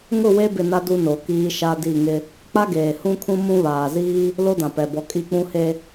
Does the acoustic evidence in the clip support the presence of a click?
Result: no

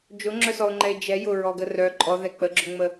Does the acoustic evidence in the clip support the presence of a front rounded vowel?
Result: yes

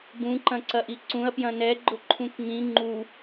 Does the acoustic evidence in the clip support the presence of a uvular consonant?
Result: no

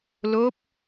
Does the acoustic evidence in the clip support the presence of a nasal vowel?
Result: no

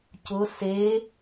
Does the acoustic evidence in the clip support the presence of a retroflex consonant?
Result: no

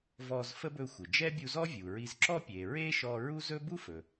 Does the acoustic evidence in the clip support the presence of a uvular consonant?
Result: no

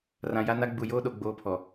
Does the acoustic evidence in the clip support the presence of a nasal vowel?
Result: yes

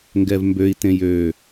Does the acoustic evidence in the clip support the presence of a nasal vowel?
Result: yes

